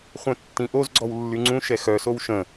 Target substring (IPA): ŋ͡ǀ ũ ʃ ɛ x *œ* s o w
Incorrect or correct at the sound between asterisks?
correct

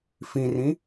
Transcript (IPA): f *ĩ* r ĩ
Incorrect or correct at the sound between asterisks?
correct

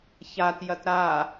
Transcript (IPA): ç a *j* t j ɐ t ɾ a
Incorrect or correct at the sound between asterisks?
incorrect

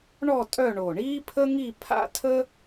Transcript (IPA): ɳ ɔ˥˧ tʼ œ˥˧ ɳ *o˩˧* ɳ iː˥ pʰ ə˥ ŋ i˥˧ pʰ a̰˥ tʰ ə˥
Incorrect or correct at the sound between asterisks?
incorrect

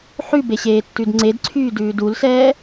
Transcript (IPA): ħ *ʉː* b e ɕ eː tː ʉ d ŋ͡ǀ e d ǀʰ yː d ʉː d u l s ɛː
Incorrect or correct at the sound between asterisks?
incorrect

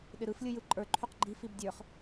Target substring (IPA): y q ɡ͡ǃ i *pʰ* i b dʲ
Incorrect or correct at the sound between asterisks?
incorrect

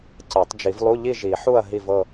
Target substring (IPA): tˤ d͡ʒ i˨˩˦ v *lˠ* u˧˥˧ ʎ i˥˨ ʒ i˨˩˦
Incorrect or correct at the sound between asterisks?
correct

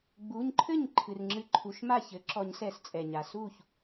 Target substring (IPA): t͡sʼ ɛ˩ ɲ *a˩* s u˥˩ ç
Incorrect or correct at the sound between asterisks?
correct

